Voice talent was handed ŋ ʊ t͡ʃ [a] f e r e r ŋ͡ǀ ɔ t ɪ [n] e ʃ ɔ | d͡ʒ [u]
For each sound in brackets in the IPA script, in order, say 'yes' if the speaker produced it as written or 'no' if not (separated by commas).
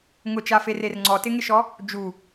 yes, no, yes